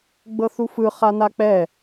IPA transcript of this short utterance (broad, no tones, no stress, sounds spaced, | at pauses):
ɡ͡b ɤ θ u f ɯ χ a n a k͡p ɛ